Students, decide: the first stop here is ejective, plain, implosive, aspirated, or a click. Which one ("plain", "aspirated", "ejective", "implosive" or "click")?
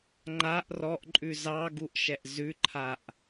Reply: click